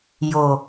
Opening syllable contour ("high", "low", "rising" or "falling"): low